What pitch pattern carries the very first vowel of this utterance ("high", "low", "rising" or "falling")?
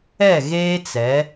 falling